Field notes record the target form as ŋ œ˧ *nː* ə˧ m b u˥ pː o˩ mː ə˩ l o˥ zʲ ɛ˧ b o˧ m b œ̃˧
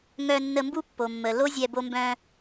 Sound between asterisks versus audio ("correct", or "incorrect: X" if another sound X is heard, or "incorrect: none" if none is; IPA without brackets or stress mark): correct